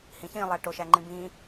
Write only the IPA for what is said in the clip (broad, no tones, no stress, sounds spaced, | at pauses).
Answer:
h ĩ ç ĩ lˠ æ ʈ o ʃ æ ŋ͡ǃ ĩ b ĩː